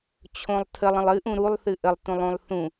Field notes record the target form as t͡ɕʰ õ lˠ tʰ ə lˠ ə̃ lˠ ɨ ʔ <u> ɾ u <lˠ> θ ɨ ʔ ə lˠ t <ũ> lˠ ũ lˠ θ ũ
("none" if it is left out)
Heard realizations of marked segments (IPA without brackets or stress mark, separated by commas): ũ, lˠ, ũ